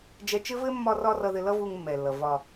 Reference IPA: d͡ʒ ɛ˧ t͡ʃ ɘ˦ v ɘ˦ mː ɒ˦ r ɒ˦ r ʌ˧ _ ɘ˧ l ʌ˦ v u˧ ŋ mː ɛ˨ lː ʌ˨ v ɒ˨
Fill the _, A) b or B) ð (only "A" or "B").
B